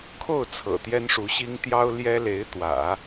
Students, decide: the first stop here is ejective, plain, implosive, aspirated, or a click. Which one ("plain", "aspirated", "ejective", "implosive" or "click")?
aspirated